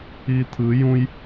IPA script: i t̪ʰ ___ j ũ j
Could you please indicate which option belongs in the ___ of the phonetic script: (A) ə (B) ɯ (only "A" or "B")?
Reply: B